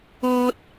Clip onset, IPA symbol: ɔː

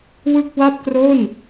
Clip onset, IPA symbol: w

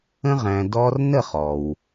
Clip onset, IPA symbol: ə̃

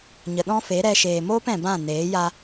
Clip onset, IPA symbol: ɲ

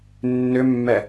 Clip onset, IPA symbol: nː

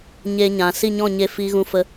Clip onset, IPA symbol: ɲ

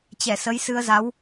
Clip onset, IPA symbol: t͡ɕ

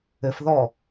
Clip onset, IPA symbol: ɘ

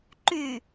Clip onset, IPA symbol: ǃ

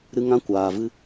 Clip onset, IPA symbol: ɾ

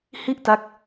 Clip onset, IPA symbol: h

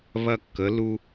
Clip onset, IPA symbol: β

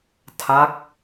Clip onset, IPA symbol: tʰ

